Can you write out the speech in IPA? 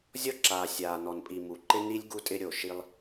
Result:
zʲ ɔ˦ ǁ aː˨ sʲ aː˨ n ɔ˨ n pʼ i˨ m u˨ ǃ ɪ˦ n i˦ lʲ ɡ u˧ tʼ ɪ˧ ɾʲ o˨ ʃ i˧ lˠ

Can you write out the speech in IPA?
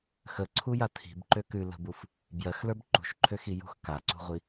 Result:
x ə ǀʰ u j a tʰ i̤ b ǃ ø k ʉ l ə̤ b u f | b j ɜ x l ə˞ b ǃ ṳ ʃ ǃʰ ø x i j ṳ x k a ǀ ṳ ʁʷ i

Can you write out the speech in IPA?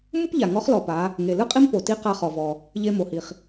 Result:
m ɯ˥ p ʎ a˩ ŋ ɔ˧˥ χ l ɔ˩ p a˩˧ | ŋ e˩ l ɯ˥ qʼ i˥ m p o˩ t i˧˥ q a˧ χ ɔ˩ v ɔ˩ | ʎ e˧ m o˩ h i˩ χ

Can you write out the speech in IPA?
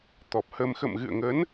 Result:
t̪ ɔ˨˩ p̚ h ə˧ m x ə̰˧˨ m ɣ ɨ̰˧˨ ə̯ ŋ ə˨˦ n

